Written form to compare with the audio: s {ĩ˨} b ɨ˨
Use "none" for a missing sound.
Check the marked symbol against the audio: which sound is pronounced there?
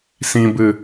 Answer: ĩ˨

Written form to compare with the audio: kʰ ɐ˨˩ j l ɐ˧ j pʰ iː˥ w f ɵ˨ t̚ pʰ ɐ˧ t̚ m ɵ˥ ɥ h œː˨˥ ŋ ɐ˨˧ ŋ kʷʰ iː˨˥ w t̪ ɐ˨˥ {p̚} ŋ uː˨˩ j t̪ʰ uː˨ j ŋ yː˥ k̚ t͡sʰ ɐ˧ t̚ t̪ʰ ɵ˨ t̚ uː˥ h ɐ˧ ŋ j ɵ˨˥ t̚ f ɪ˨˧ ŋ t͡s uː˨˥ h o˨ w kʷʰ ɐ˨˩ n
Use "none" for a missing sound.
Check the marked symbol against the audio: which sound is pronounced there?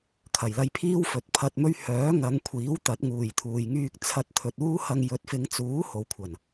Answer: t̚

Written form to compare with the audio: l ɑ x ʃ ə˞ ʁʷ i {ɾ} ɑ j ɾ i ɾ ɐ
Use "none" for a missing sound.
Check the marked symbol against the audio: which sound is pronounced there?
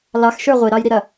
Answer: ɾ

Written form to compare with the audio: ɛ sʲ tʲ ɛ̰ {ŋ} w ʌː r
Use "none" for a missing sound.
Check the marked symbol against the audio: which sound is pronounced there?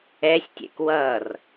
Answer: k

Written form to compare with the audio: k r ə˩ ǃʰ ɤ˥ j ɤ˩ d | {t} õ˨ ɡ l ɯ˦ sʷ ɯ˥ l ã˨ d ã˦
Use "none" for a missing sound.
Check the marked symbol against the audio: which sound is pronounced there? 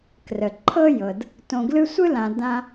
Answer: t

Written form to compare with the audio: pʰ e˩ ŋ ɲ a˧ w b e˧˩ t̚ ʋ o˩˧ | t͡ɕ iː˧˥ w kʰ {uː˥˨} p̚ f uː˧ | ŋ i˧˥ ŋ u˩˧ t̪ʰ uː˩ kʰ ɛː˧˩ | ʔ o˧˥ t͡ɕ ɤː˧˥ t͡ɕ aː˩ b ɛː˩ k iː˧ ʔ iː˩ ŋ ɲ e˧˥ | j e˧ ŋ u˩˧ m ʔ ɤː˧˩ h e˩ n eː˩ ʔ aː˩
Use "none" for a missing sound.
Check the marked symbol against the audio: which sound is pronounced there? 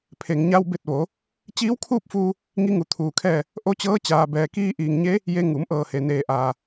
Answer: uː˥˨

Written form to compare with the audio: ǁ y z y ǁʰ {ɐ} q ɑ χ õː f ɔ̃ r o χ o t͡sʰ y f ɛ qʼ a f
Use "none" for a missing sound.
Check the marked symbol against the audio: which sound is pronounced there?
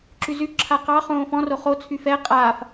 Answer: a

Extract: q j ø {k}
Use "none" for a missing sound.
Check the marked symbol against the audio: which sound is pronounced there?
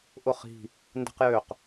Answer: q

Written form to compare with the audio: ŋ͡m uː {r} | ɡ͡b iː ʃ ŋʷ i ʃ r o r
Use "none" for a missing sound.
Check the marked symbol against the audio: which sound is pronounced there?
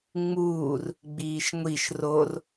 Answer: r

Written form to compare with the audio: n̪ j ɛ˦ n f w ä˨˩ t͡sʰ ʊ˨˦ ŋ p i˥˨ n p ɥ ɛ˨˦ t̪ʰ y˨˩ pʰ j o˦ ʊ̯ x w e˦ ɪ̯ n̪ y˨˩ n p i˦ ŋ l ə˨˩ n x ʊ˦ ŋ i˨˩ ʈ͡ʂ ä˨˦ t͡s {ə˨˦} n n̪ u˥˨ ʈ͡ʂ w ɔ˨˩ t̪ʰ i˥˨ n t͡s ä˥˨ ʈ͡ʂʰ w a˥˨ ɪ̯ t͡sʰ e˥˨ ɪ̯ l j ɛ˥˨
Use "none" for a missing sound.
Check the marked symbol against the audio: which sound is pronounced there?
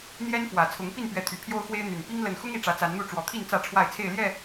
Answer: a˨˦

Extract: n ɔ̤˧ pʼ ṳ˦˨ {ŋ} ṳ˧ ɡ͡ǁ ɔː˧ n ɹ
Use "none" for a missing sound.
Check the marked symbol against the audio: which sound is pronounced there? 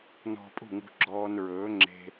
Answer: ŋ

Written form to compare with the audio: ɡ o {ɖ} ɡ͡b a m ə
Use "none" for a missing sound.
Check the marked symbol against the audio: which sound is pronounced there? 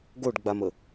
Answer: ɖ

